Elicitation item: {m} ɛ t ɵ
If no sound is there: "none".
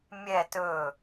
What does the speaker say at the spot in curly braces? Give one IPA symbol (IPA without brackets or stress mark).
mʲ